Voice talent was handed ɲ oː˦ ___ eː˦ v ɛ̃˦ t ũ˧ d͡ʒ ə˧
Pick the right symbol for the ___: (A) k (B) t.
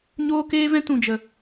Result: A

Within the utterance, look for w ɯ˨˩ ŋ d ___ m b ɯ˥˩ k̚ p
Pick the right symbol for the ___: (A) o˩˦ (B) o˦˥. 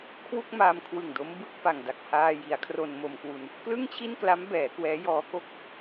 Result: B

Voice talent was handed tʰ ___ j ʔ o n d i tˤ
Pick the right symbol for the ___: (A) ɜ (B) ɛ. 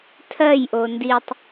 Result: A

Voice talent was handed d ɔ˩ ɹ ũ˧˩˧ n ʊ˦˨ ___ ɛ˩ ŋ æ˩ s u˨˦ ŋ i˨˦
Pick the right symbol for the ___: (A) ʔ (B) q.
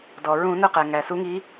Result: B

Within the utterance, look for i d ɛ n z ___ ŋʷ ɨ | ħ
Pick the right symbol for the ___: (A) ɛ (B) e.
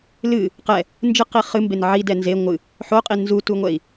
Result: B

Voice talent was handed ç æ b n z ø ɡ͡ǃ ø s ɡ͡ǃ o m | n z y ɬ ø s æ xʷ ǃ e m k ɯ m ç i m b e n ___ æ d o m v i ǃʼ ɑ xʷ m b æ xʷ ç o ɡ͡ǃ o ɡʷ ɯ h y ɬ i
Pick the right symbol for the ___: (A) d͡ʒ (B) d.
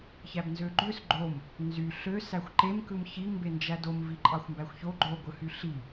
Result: A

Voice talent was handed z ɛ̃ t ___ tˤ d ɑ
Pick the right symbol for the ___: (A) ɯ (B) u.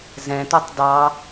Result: B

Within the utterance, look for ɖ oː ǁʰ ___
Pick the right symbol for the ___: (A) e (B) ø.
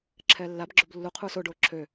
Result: B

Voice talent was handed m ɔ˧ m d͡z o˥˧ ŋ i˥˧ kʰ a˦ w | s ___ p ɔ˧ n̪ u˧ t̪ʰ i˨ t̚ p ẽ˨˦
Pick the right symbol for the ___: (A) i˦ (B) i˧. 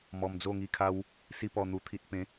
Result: A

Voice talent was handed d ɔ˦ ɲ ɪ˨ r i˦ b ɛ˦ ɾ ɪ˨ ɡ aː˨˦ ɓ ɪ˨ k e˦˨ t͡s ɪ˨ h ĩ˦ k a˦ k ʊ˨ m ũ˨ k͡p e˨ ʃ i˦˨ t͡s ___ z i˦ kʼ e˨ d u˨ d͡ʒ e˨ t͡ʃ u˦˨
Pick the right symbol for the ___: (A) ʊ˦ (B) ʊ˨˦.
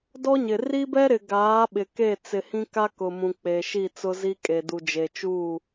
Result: A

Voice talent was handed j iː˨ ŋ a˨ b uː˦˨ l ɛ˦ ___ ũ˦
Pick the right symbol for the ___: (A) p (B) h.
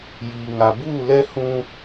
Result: B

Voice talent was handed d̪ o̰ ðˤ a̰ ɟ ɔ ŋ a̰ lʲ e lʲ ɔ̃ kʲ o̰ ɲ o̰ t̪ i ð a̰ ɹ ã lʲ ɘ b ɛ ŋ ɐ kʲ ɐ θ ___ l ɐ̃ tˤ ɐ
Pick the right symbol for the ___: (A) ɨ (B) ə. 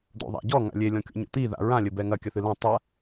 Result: A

